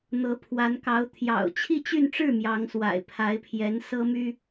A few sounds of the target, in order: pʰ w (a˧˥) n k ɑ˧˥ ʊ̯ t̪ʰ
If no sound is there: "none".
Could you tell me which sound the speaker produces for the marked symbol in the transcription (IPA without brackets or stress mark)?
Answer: a˧˥